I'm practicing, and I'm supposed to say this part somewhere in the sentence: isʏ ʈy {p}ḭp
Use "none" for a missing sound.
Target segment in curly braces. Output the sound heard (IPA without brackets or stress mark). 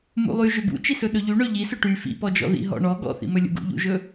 f